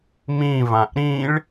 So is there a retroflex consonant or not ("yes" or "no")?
yes